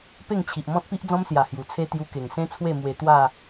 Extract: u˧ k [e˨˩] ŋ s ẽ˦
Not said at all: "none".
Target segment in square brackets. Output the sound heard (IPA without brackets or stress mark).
e˨˩